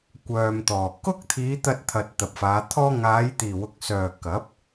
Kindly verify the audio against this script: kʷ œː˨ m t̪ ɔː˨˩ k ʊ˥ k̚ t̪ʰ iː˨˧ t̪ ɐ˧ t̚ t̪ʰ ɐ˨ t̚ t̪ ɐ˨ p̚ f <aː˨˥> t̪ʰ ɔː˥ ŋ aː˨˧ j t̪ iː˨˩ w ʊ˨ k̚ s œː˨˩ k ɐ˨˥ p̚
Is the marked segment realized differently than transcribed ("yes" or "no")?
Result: yes